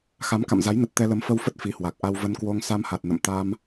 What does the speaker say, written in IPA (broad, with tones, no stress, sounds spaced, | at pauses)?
x a˨˦ m k a̰˧˨ m z a˨˦ j n ə˨˩ t̚ t̪ ɛ˧ l ə˨˦ m f ə˧ w f ə˦˥ t̚ f i˨˦ h w a˨˩ k̚ ʔ a˧ w v ə˧ n k w o˧ ŋ s a˧ m h a˨˩ t̚ n ə̰˧˨ m t̪ a˧ m